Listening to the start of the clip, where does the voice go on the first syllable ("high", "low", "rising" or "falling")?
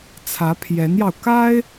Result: rising